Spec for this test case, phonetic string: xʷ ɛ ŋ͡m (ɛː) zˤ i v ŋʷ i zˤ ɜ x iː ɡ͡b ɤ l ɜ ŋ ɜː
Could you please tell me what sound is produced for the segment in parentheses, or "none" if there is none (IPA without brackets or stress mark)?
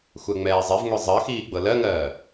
ɛː